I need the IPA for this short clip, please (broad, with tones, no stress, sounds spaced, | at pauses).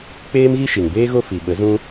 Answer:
k͡p eː˦ m ɣ i˦ ʃ i˨ ŋ b eː˦ ɣ o˦ f i˨ ɓ ə˨˦ z ũ˦